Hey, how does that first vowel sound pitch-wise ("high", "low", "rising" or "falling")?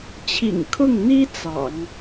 low